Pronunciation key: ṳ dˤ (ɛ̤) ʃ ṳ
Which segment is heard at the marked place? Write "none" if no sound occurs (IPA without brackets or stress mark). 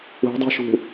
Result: e̤